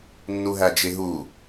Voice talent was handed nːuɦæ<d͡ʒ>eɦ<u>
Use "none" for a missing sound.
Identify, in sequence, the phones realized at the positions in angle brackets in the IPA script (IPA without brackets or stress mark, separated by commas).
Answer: d͡ʒ, u